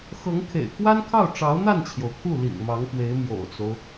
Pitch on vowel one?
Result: rising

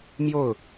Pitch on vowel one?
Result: falling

